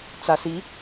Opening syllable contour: low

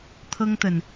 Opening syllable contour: high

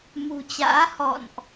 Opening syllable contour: low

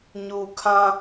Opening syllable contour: low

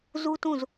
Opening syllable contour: high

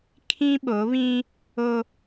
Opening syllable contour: high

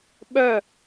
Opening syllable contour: falling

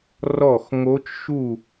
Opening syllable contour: falling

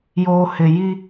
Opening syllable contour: low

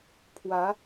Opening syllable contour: rising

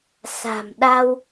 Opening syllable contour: low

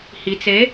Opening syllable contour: low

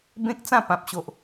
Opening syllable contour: high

